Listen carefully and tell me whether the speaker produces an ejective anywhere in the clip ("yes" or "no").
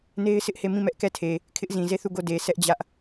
no